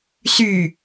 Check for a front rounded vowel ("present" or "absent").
present